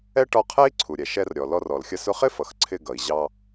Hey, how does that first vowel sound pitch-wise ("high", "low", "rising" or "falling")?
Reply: high